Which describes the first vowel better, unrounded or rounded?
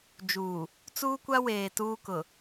rounded